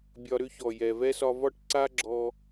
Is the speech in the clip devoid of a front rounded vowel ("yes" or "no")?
no